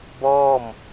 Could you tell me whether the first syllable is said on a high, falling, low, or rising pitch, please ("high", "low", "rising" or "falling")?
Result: falling